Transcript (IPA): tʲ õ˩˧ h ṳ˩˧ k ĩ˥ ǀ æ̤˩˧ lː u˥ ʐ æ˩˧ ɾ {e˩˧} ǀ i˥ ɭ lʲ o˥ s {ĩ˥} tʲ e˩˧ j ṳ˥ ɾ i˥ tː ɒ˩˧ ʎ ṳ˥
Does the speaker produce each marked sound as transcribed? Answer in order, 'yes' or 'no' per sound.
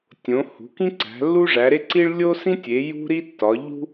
no, yes

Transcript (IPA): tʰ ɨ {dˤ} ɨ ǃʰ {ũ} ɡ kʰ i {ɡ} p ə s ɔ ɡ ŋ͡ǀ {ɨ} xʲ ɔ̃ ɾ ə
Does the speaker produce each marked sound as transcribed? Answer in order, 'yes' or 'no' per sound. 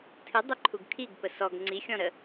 yes, no, yes, no

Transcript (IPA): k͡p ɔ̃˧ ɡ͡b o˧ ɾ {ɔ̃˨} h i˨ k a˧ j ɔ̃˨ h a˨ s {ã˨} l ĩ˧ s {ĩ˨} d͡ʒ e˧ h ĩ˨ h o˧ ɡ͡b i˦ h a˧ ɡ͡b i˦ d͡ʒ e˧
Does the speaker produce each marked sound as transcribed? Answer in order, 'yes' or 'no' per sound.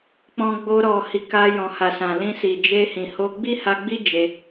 no, yes, no

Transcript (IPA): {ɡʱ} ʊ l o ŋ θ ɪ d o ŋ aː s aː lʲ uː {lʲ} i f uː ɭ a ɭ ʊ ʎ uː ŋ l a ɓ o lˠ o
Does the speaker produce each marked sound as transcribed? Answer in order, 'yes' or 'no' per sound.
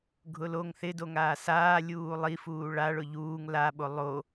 yes, no

